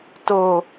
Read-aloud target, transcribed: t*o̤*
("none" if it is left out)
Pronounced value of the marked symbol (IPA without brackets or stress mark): o